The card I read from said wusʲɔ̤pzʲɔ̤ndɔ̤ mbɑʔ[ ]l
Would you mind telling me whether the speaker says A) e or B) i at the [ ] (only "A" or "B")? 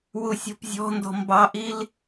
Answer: B